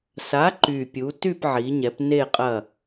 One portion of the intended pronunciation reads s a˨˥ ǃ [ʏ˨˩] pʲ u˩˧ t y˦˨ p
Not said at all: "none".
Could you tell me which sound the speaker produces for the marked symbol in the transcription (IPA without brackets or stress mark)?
y˨˩